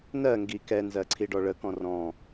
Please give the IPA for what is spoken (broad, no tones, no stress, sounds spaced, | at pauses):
n ɜ ŋ ɡ i k ɛ n z ɜ ǀʰ i ɖ ɔ ɭ ə k ɔ̃ r ɔ̃